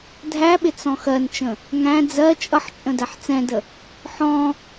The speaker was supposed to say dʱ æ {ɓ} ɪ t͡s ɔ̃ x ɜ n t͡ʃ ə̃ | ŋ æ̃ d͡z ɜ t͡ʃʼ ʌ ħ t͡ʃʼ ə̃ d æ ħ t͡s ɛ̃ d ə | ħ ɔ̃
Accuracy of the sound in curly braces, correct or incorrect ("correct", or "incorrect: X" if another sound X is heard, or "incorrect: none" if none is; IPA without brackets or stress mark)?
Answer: correct